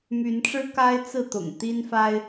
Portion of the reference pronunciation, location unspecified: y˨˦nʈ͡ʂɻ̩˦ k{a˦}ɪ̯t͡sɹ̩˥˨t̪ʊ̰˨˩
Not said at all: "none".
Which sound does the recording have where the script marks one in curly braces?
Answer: a˦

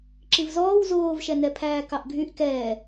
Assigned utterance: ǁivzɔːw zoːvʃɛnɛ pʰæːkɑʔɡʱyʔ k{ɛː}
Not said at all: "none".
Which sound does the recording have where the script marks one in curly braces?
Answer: ɛː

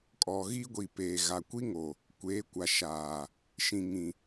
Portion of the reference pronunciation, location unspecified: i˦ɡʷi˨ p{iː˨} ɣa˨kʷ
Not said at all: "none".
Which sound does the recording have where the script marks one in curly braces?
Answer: eː˨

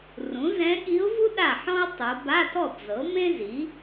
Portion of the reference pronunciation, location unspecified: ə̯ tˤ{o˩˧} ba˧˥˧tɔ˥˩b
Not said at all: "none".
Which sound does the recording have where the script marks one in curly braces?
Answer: o˩˧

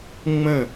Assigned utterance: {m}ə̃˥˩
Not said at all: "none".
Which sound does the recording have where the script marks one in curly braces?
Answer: ŋ͡m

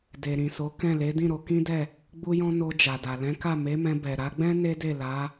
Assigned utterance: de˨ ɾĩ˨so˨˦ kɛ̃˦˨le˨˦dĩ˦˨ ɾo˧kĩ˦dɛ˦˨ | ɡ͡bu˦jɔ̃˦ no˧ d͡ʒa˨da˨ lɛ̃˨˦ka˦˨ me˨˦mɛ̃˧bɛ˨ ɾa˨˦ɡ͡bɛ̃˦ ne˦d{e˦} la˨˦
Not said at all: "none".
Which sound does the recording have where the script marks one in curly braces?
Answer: e˦˨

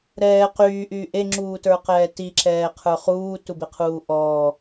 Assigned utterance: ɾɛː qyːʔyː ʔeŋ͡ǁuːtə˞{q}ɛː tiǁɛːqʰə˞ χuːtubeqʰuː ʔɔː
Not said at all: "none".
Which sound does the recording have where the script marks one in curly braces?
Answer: q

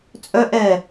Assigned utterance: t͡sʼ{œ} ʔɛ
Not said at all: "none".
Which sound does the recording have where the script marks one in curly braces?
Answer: œ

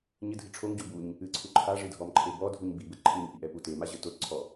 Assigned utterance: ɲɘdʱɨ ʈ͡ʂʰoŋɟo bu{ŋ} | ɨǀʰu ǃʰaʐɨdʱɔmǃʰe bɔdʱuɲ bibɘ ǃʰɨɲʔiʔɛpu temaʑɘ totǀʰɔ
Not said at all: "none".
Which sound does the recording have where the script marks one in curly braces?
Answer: ɲ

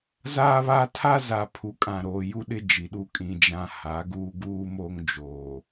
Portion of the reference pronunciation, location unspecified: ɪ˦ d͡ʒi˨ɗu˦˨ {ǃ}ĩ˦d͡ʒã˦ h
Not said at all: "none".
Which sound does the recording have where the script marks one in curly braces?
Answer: kʼ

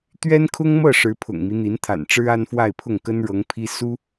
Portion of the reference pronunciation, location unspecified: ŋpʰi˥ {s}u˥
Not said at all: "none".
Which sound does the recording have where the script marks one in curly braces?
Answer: s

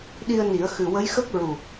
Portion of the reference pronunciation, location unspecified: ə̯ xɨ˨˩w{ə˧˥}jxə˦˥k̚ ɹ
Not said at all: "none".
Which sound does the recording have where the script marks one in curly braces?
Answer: ə˧˥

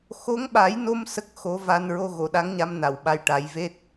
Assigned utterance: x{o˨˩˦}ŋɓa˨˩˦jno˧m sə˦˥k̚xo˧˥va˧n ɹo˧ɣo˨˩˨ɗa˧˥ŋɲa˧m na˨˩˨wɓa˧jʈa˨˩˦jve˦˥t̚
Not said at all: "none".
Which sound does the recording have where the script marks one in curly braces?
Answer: o˧˥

